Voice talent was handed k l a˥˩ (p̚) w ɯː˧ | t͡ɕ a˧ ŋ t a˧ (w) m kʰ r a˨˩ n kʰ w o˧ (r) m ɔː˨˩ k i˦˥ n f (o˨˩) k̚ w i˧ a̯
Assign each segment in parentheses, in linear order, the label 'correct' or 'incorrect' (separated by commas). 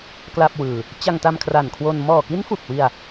correct, incorrect, incorrect, incorrect